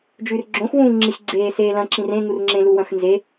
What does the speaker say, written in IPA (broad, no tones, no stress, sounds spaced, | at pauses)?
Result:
d͡ʒ ʉ r ɡ͡ǁ õ x w ũː ŋ͡ǁ i x ɡ͡ǀ eː s eː l ɐ̃ ǁ ĩ r ẽ ŋ u r ŋ͡ǁ ẽ l u w ɐ̃ x n z e